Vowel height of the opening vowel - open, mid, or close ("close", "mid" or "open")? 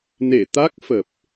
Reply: mid